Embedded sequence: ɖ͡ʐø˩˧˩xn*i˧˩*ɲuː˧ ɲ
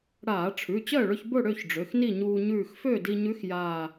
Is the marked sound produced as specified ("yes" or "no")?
no